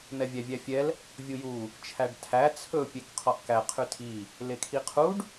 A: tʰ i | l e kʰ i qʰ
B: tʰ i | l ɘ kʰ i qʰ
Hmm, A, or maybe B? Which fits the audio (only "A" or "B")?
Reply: A